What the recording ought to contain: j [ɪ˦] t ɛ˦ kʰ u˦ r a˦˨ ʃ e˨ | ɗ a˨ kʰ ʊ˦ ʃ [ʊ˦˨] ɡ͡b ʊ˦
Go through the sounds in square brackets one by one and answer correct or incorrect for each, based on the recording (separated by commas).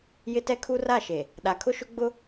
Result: correct, incorrect